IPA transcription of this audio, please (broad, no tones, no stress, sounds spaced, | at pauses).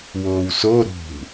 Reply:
w oː w s o ɾ ṳ